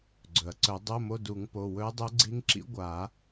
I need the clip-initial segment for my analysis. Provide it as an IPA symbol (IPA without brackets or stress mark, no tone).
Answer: ɡ͡ǀ